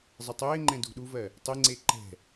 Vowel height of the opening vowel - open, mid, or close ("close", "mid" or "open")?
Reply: close